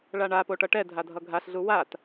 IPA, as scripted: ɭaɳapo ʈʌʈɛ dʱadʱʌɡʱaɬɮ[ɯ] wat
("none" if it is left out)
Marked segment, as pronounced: u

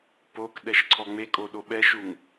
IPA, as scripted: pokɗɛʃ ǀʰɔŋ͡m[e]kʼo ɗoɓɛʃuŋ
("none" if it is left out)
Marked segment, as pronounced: e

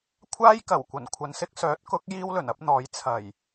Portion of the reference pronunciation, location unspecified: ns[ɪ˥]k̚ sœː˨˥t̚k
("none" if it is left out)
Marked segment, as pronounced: ɪ˥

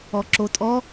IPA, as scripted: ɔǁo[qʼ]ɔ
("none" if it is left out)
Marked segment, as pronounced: tʼ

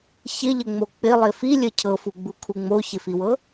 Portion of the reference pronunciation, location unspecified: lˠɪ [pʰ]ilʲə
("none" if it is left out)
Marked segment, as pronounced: f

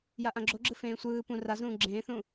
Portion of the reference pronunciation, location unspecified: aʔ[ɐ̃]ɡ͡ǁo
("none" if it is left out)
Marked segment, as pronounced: ã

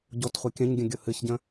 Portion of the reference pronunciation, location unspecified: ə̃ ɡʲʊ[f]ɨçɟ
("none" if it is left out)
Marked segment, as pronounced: h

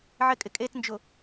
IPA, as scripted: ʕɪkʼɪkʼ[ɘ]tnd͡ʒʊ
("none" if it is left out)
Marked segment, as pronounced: e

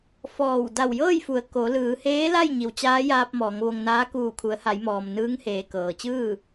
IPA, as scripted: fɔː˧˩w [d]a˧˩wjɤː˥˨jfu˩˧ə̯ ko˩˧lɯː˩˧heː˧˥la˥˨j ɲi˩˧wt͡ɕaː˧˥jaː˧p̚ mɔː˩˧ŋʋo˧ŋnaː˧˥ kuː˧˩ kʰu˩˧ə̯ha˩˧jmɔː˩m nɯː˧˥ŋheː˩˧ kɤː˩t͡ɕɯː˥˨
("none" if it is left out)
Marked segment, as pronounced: d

